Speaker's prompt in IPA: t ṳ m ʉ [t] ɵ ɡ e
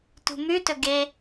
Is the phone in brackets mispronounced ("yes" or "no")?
no